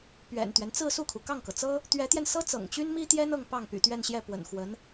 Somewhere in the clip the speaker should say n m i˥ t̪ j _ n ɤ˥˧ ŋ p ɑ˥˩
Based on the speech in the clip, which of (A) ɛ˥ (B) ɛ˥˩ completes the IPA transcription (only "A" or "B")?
A